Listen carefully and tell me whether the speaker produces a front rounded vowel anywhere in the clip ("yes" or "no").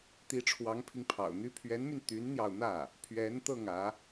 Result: yes